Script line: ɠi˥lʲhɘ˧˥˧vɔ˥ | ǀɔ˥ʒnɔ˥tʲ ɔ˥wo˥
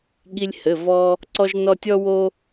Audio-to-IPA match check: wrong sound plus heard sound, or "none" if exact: none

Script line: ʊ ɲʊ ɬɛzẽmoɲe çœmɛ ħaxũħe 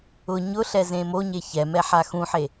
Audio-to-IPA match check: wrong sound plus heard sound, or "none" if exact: œ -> ɛ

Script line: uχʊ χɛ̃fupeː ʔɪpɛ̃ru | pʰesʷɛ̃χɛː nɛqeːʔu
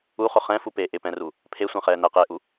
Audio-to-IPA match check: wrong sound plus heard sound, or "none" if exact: none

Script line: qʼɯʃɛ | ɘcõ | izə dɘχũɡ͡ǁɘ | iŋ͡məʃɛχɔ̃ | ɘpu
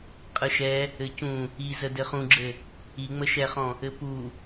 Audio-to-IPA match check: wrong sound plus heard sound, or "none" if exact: õ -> ũ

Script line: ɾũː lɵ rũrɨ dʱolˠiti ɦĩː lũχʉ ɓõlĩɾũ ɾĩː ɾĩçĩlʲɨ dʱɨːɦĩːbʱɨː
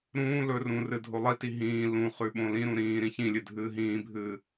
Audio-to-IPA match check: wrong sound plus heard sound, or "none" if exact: none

